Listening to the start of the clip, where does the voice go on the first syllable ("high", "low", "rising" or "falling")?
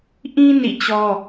high